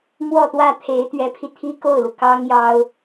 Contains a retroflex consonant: no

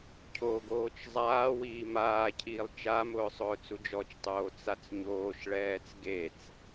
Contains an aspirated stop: yes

